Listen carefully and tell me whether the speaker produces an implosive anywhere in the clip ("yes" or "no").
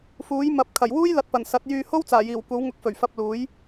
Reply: no